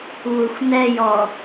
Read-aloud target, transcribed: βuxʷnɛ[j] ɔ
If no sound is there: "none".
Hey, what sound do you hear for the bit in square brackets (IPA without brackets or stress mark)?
j